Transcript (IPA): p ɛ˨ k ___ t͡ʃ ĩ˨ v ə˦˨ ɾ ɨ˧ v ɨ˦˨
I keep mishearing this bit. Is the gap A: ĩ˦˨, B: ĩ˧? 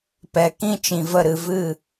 A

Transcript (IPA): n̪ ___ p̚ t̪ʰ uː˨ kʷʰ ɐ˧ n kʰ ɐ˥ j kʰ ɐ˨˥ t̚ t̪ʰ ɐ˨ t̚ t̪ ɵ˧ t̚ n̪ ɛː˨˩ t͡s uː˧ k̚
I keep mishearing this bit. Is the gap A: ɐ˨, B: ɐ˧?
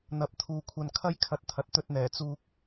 A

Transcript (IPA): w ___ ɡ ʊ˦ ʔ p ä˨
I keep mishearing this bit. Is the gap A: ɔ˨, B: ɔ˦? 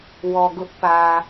A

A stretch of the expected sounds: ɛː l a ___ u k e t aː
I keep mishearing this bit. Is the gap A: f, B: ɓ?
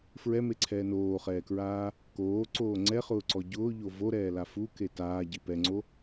A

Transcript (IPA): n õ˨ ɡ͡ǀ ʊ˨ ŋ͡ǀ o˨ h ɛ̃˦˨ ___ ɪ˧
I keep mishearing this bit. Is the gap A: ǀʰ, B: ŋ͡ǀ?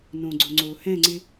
B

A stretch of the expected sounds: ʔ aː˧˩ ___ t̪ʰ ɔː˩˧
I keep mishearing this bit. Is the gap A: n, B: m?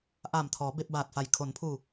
B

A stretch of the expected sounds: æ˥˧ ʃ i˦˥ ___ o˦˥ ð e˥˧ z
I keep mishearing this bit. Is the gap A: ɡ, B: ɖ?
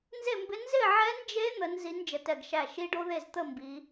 B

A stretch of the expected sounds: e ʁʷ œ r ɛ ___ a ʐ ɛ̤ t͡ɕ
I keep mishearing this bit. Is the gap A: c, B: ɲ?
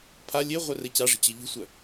A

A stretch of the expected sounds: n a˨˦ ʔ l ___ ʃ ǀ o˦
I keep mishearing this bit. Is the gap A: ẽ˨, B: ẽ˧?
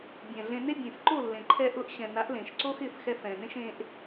A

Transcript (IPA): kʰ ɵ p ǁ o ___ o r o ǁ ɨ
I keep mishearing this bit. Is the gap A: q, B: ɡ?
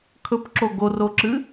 B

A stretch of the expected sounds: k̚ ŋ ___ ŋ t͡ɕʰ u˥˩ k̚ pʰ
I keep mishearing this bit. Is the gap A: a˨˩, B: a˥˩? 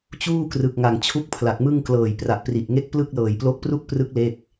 A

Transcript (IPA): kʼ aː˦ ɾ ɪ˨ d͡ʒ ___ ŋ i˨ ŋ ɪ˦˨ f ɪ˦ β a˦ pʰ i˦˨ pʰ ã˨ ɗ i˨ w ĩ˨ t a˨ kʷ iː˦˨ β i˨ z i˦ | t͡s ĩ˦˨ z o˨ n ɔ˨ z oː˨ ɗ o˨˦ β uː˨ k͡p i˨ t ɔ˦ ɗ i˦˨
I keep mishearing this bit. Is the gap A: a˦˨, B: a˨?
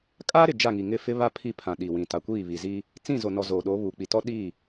A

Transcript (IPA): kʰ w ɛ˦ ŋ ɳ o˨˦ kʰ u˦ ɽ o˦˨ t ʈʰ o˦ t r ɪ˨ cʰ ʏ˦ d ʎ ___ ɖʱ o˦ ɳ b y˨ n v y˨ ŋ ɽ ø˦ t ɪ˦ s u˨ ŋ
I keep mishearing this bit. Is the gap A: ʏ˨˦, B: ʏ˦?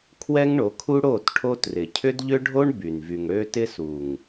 B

